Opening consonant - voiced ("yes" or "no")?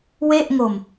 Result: yes